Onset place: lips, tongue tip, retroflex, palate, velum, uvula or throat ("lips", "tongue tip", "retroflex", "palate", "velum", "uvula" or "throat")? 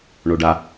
retroflex